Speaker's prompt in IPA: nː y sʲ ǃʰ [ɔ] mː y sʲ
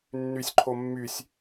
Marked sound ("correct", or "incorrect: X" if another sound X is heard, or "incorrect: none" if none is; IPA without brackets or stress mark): incorrect: o